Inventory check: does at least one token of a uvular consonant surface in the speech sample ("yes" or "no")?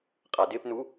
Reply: yes